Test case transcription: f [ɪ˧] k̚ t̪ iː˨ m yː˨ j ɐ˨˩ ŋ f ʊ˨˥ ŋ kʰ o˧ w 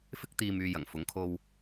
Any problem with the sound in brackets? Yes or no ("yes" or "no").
no